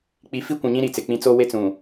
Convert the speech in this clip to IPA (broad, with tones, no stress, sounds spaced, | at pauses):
k͡p i˨˦ f i˦ kʷ ũ˨ ɲ ĩ˦ ɾ i˨ t͡s ɪ˨ k͡p ĩ˦ t͡s o˦ w e˦ t͡s ũ˨